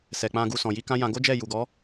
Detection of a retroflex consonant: absent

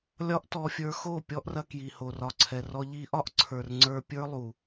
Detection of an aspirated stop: present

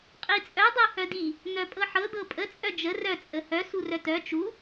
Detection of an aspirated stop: absent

